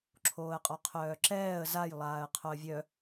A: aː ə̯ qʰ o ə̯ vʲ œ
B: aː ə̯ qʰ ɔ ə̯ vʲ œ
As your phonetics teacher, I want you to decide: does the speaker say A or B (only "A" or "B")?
A